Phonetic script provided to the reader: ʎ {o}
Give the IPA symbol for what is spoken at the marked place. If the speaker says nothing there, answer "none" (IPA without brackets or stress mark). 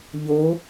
o